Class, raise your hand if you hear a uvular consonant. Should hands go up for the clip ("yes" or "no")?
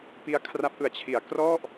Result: no